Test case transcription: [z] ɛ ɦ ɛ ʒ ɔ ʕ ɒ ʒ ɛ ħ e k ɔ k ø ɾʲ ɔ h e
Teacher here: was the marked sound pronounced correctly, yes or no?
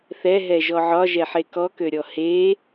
no